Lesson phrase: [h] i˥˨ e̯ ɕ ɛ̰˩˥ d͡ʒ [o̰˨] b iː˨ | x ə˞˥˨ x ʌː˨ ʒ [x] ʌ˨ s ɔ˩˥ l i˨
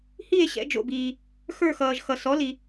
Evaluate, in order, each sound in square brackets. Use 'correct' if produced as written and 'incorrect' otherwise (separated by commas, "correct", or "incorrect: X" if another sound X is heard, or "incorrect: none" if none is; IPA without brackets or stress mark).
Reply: correct, correct, correct